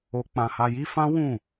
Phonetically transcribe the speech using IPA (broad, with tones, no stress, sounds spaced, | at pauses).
o˧ k͡p ã˧ h a˧ j i˦ f ã˦ w ũ˦˨